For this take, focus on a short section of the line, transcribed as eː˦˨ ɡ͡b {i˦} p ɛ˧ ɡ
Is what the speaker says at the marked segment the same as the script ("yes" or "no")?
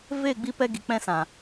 no